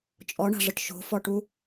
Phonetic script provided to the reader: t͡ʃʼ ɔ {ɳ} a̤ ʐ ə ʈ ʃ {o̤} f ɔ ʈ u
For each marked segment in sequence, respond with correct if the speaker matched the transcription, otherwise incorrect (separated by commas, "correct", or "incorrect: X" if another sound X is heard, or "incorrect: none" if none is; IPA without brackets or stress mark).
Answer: correct, correct